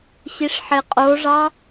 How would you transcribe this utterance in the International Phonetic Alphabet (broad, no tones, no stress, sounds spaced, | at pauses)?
ɕ i ʂ ħ e qʼ o ʐ ɑ